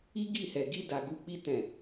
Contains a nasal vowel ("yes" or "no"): yes